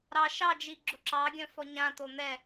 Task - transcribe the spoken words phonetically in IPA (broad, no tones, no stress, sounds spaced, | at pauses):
ɾ ɑ ʃ ɑ d͡ʒ i ɡ͡ǁ ʊ ǁ ɑ ɡʲ œ̃ f ɔ ɲ ã t̪ o n̪ ɛ